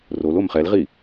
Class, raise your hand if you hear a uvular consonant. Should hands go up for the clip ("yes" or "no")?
yes